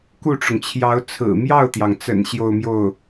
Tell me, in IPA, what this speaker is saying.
k u˥˩ ʈ͡ʂ ʊ˩ ŋ t͡ɕʰ j ɑ˧˥ ʊ̯ t͡sʰ ɹ̩˨˩ m j ɑ˥˩ ʊ̯ t̪ j ɑ˩ ŋ t͡s ə̰˨˩ n ɕ j o˥˧ ʊ̯ m j o˥˩ ʊ̯

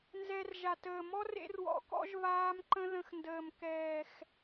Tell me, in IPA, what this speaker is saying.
n z ɛ˧ r ʒ a˨ t əː˨ m ɔ˦ r ḛ˦ r w ɔ̰˧ k ɔ̰˦ ʒ β aː˦ m ǃ ə̃˦ ð ə̃˧ x n d əː˨ m k ɛː˨ x

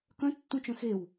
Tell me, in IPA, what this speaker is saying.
k œ̃ tː ũ t͡ʃ œ̃ x e w

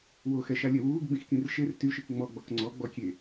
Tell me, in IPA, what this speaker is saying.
w o x ɛ ʃ a lʲ ɛ w uː ɡ ɡ͡b ĩ x k ĩ r ʃ e r t y ʃ i k ŋ͡m ɔ ɡ͡b ɔ k ŋ͡ǀ ɔ ɡ͡b ɔ kʲ e

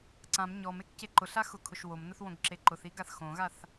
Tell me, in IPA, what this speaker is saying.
ǀ ã m ɲ ɔ m e k c e ǃ ʊ ɬ a x ʊ kʰ ʊ ʃ w o m n ʊ θ w õ ɡ ǁ e ǃ ʊ θ i ɡ a θ x õ ɣ a θ

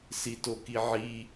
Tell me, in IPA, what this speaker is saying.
s i t o k i ʕ i

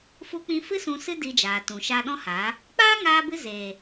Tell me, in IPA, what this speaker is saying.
f u˦ k͡p ĩ˧ f ɨ˦ s ũ˧ s ɨ˦ d i˧ d͡ʒ aː˨ t ũ˨ ʃ aː˧ ɗ ɔ̃˦ h aː˨˦ | k͡p aː˦ ŋ aː˧ b ɨ˧ z eː˨

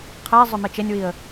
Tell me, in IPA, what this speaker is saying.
qʰ ɛ zˤ ʏ m e t͡ʃ e nʲ w i ə̯

